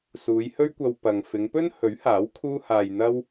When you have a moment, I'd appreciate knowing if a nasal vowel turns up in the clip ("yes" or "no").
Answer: no